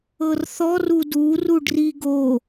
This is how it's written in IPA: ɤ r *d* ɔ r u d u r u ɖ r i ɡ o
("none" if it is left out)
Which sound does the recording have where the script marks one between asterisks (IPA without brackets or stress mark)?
θ